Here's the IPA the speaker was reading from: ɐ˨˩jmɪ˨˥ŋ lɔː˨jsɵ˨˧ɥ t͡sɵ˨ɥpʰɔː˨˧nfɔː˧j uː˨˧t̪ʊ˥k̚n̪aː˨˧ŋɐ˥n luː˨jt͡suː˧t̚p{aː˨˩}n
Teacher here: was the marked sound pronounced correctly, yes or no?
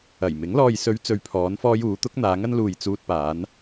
no